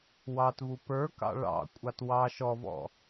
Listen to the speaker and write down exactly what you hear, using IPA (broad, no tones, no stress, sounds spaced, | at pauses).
w ɑ t v u p ə˞ k ɑ̰ ɭ ɑ̰ kʷʼ ɑ t w ɑ ʃ ɔ v ɔ̰